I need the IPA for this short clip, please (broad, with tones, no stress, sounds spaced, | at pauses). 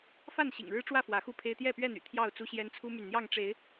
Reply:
f a˥˨ n ɕ ḭ˨˩ ŋ ɻ ɻ̩˦ ʈ͡ʂ w ä˥˨ f w ä˨˦ x u˥˨ pʰ e˦ ɪ̯ t̪ j ɛ˥˨ p ɥ ɛ˥˨ n̪ y̰˨˩ t̪ʰ j ɑ˥˨ ʊ̯ t͡s u˦ ɕ j ɛ˦ n t͡sʰ u˦ m y˨ n n̪ j ɑ˥˨ ŋ ʈ͡ʂ e˨˦ ɪ̯